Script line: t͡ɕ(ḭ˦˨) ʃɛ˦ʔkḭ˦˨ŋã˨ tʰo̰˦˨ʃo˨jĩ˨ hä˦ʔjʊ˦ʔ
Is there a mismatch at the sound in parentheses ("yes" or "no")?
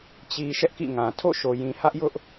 yes